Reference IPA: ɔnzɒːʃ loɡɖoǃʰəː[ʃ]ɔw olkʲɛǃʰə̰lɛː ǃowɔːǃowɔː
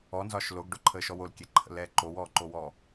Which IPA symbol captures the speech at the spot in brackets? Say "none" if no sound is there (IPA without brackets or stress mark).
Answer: ʃ